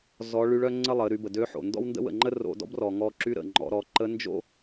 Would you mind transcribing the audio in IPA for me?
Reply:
z ɔ˧˥ ɭ y˧˥ ɭ œ˥ ŋ͡ǀ ə˥ lˠ ə˩˧ ɾ y˩˧ b ə˩ d ø˧˥ ħ o̰˩ n d ɔ̰˥ w n d ə̰˥ w ə̰˩ ŋ͡ǃ ə˥ r o̰˧ d ɔ̰˥ b r ɔ˩ ŋ ɔ˧ ǁ y˧˥ ɾ ə̰˩ ŋ͡ǃ ɔ̰˩˧ ɾ ɔ˩˧ ǃ ə˧˥ n d͡ʒ o̰˥

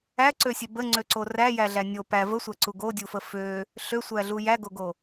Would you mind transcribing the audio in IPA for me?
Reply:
æ ǀ ø sʲ ø b ə ŋ͡ǀ ø ǀ o r æ j æ ɮ æ nʲ o p æ v ə sʷ æ ǀ u ɡ o dʲ u f ə f ø | ɬ ø sʷ æ ɮ u j æ ɡ o ɡ o

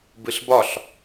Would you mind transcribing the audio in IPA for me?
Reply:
b ɨ ɬ b ɒ ɬ

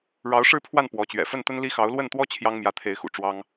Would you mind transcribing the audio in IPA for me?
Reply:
ɻ ɑ˧˥ ʊ̯ ʂ ɻ̩˥˧ pʰ w a˥˩ n p w ɔ˧˥ t͡ɕ ɥ ɛ̰˨˩ f ə˥˩ n t̪ ə˥ n l i˥ x ɑ˧˥ ʊ̯ l w ə˥˩ n t̪ w ɔ˥ t͡ɕʰ j ɑ˥ ŋ m j ä˧˥ t̪ʰ e˧˥ ɪ̯ x ṵ˨˩ ʈ͡ʂ w ɑ˥ ŋ

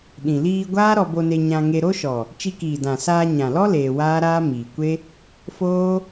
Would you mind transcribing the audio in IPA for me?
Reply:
ɗ ĩ˨ l iː˧ ɡʷ aː˦ ɾ ɔ˧ b o˧ n e˧ ɲ ã˧ ŋ e˧ ɾ o˦ ʃ ɔ˨ | t͡ʃ i˧ k iː˨ d ã˨ s aː˧ ɲ ã˨ l ɔ˦ l eː˧ w aː˦ ɾ aː˦ m iː˨ kʷ e˦ | f oː˦

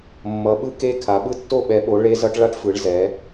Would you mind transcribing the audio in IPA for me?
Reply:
mː ʌ˨˦ ɓ ɯ˥ k e˥ kʰ a˨˦ ɓ ɯ˥ tː o˥ ɓ ɛ˨˦ ɓ o˨˦ ɭ e˥ z ʌ˥ ʈ ɭ a˥ ʈ f ɯ˨˦ ɭ z ɛ˨˦

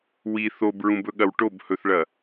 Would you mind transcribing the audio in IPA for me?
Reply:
w i θ o b ɹ ũ b ɵ ɠ ɐ w ʈ o b h ɵ θ ɭ ɐ

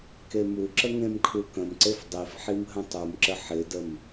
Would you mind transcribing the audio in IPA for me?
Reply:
k e m u ǁ ə ŋ ẽ m kʰ u k ə̃ m ǀ e f dˤ i f ħ i m ɦ ə̃ tˤ u m ǁ ə ħ ɪ d ə m

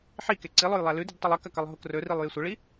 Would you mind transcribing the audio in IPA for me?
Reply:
ħ i k e ǀ i lˠ o j lˠ a l ʉ d i d tˤ e lˠ e k ɐ k ɐ lˠ ɦ o k r ɵ r i lˠ j e sʷ ɐ ɭ i

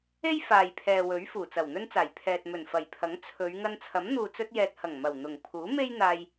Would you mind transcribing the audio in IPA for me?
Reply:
e˥ j f aː˨ j pʰ ɛː˨ w ɵ˨˥ ɥ f uː˨˩ t͡s ɐ˨˩ w n̪ ɵ˥ n t͡s aː˨˩ j pʰ ɛː˨ t̚ m ɵ˨˩ n f ɐ˨˩ j pʰ ɐ˨˥ ŋ t͡sʰ ɵ˨˧ ɥ ŋ ɐ˧ n t͡sʰ ɐ˨˥ m n̪ uː˨ t͡s ɵ˧ t̚ j ɛː˨ t̚ h ɐ˨˩ ŋ m ɐ˨˩ w n̪ ʊ˨˩ ŋ pʰ uː˨˥ m e˥ j n̪ aː˧ j

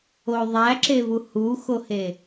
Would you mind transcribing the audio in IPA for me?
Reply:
o ðˤ æ ǁ e v u h u x o h e

